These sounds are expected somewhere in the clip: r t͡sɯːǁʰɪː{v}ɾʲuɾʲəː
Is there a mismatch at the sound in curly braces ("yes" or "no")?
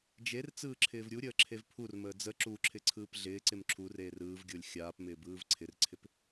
no